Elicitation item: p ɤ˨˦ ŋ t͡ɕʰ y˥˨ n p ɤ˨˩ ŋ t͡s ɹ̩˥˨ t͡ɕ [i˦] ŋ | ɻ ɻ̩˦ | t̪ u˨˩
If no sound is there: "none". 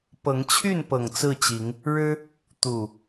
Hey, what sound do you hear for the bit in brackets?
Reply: i˨˦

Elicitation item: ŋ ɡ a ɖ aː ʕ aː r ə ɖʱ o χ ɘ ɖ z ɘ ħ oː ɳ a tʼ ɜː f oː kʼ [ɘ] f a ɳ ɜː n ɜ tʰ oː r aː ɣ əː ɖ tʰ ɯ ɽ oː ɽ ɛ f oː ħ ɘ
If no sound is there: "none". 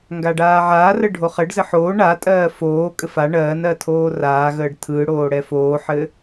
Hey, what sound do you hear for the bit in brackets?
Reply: ɘ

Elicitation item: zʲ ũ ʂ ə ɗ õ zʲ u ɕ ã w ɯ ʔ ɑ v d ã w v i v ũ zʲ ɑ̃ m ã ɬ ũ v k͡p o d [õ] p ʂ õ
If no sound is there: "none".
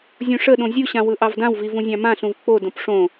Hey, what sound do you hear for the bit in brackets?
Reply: õ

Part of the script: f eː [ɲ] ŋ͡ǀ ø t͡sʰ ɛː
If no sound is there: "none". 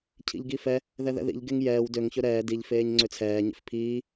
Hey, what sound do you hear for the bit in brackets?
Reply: ɲ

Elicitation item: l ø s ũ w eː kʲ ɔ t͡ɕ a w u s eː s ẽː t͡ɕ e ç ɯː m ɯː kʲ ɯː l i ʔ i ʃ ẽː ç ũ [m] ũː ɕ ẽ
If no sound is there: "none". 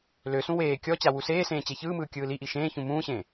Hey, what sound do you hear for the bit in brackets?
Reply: m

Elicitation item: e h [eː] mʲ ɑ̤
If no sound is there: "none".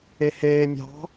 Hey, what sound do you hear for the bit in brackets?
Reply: eː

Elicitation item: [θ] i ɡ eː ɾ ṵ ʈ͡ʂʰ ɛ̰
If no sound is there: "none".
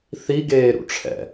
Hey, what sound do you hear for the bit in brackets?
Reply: θ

